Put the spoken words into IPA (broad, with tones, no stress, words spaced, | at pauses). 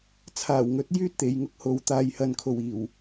t͡sʰaː˨˩wŋɵ˨˥t̚ jyː˥t̚t̪e˨jŋʊ˥k̚ho˨˧w t̪aː˨jhɐ˨nkʰo˨˩w iː˨˩w